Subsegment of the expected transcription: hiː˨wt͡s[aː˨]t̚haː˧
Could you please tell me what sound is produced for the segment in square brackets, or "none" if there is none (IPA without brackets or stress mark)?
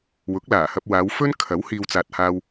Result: aː˨